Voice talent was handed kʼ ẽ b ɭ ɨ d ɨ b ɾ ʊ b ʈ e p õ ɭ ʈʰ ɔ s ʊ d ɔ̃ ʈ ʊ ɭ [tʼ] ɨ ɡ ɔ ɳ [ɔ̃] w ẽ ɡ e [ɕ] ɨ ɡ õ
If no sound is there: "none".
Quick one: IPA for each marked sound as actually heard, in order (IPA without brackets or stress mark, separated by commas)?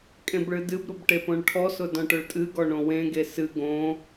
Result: tʼ, õ, s